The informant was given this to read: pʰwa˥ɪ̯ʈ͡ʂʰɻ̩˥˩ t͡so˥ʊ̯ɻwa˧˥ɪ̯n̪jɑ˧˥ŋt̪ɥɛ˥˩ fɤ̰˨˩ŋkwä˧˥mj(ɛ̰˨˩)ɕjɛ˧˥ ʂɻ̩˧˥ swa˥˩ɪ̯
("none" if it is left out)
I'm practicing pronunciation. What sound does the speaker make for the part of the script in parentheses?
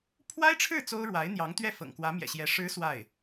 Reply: ɛ̰˨˩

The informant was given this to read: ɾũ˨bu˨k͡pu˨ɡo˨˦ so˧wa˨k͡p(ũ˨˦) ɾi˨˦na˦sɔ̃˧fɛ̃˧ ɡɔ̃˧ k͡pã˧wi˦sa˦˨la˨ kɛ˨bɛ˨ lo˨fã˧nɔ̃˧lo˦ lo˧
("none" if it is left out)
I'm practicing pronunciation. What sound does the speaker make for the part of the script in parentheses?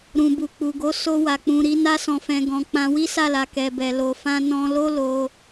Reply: ũ˨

